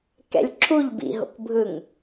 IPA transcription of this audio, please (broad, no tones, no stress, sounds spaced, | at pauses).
k ɛ̰ lʲ ǁʰ u ʎ b ḭ ɦ o̰ k bʱ ɯ ŋ